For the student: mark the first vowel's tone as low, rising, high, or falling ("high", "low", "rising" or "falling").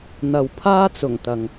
low